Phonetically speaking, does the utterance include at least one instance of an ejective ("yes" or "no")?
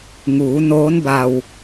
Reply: no